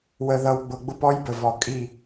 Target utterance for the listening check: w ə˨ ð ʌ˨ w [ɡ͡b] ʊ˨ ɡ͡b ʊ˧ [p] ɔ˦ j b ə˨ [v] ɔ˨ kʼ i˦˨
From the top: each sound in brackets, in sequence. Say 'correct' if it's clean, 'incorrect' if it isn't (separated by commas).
correct, correct, correct